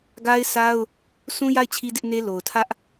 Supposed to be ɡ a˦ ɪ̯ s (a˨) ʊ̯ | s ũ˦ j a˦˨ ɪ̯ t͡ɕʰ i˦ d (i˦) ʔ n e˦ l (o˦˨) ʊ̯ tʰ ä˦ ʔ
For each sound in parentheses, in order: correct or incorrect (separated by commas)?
incorrect, incorrect, incorrect